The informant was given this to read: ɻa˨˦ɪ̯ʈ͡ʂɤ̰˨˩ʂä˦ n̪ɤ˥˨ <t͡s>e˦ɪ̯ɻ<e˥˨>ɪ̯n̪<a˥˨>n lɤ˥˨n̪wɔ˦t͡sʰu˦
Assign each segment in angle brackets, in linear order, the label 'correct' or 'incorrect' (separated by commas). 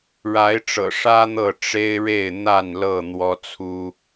incorrect, correct, correct